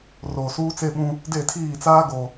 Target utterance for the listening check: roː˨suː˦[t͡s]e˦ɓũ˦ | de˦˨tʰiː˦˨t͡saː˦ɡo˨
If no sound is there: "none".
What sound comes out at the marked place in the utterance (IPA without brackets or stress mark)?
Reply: t͡s